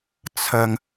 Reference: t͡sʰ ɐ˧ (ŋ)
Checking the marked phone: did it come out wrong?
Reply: no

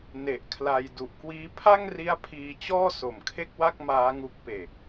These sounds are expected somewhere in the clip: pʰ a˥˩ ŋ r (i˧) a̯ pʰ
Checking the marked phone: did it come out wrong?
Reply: yes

